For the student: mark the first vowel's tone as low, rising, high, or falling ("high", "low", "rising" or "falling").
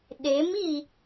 rising